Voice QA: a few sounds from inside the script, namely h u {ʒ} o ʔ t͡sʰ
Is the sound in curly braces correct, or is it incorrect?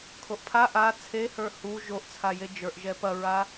correct